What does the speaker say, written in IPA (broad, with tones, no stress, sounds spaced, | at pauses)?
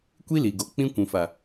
kʷ i˦ l i˨ ɡ o˨ k͡p ĩ˧ kʷ ũ˨ f a˨